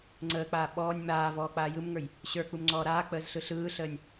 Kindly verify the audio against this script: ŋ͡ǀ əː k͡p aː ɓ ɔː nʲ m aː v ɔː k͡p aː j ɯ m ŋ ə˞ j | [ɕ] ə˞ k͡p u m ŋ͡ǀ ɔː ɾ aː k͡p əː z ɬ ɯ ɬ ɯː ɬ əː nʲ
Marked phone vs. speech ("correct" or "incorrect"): correct